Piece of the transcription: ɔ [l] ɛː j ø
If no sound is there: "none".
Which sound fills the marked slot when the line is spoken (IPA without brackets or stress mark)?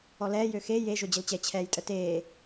l